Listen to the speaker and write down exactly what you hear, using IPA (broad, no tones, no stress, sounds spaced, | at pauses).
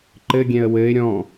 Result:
ǃ ɘ ɡʲ ɛ̃ ə̯ w ɘ ɪ̯ ɾʲ ɔ̃